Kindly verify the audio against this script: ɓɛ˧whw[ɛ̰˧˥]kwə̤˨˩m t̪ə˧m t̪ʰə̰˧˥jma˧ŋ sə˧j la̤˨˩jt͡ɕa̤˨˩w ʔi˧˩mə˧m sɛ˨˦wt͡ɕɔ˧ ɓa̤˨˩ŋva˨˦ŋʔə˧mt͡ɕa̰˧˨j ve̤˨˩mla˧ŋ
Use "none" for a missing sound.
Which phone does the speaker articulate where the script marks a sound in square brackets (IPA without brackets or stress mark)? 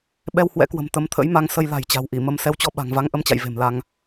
ɛ̰˧˥